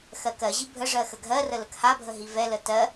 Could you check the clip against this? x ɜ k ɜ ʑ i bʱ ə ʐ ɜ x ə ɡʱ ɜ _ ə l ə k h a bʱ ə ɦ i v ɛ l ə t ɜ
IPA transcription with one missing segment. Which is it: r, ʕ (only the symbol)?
r